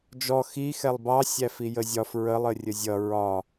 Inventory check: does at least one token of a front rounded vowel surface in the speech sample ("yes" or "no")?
no